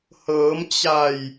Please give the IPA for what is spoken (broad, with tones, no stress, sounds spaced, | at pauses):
h ɤː˩˧ m t͡ɕ a˧˩ j